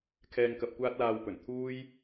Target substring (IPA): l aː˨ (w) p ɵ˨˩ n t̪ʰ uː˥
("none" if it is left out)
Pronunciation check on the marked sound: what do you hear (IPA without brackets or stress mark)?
w